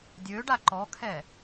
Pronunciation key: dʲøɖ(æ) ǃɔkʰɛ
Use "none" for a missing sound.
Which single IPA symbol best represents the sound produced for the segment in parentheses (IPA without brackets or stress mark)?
a